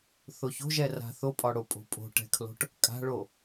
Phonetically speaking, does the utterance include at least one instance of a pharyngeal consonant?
no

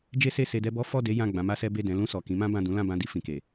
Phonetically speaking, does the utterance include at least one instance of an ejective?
no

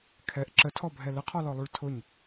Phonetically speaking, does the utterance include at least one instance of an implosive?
no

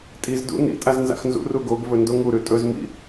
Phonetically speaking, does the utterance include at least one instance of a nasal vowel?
no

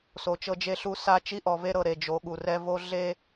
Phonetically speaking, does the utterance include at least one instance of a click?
no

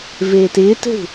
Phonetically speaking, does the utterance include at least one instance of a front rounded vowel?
no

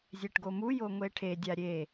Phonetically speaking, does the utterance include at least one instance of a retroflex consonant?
yes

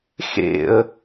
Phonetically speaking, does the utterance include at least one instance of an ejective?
no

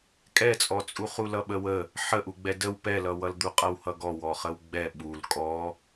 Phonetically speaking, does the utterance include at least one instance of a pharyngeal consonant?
yes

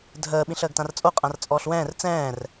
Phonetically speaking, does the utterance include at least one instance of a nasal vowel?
yes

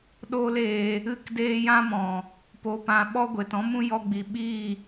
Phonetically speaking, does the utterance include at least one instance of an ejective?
no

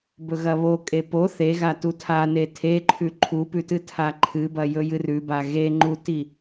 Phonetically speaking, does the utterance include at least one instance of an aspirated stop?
yes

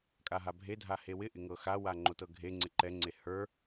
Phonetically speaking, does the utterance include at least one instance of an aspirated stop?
no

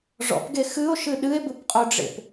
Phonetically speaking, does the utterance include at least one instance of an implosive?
yes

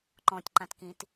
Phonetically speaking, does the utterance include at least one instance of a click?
yes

